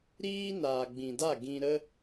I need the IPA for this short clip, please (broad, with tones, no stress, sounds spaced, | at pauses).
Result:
ɾ iː˦ n aː˨ ɡ͡b ĩ˨ d a˦˨ ɡ ĩ˧ ɾ ə˦